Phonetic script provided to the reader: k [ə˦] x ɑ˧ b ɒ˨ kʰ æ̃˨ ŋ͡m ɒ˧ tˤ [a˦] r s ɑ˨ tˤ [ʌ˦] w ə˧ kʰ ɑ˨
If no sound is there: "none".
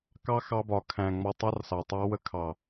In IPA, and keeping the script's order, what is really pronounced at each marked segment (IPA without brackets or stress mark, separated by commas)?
ɑ˦, ɑ˦, ɑ˦